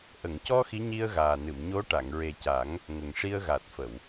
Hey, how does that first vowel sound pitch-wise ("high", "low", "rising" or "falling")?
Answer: low